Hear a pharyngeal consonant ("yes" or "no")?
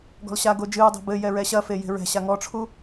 no